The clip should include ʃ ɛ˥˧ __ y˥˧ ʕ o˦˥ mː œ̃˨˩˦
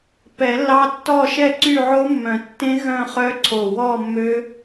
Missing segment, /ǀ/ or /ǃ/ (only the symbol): ǀ